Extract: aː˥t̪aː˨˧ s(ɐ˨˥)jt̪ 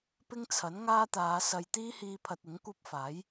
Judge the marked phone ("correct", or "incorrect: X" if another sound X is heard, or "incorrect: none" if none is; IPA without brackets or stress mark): incorrect: ɐ˨